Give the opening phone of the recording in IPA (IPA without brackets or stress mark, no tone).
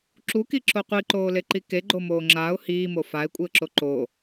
ǁ